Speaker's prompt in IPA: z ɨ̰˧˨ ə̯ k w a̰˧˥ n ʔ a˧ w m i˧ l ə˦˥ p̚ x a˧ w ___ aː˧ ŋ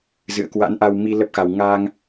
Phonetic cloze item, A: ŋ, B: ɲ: A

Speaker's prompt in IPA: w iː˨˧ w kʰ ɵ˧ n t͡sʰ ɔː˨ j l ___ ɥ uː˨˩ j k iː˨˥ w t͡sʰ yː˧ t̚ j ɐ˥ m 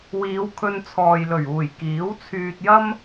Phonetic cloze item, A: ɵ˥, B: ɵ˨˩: B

